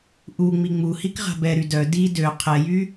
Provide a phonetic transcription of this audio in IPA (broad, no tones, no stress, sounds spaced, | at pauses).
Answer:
ʔ u ŋ͡m i ŋ͡m u h i k ʁ a̤ b ɛ ɾ y d œ d i d ø qʰ ɛ j y